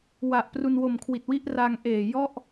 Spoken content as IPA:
wa˨˩ʔ pru˧nwo˨˩mkʰwi˨˩t̚wi˥˩ʔ ra˧ŋʔeː˨˩ jɔ˥˩ʔ

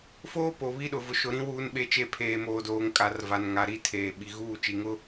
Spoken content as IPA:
foː˦po˨ βi˦ɗʊ˨ vʊ˨ʃʊ˨ɾĩ˦ wuː˦nɓe˦t͡ʃe˦ pʰeː˨moː˨doː˨ŋ kʼa˨rva˨nŋa˨ ɾi˦ tʰeː˨ ɓi˨ɣuː˦˨t͡ʃi˨ŋʊ˦

